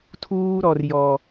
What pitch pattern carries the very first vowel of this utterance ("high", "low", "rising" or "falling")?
high